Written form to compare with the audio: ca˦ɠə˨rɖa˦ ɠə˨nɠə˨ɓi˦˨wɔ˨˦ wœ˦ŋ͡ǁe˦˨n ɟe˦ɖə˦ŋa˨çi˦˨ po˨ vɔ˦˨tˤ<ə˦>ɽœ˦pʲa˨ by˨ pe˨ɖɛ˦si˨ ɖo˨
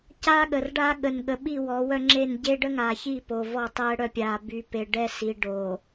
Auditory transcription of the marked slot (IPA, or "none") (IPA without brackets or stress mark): ɛ˦